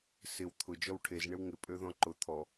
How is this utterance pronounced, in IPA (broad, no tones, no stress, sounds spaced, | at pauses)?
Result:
s ɪ w t̪ʰ ʊ d͡ʒ ɔ w ʈʰ e z ɳ ɪ w ŋ ɪ pʼ ø ð ɔ̃ ǃ ʊ t̪ʰ ɔ